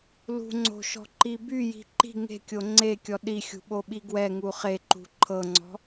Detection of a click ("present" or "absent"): present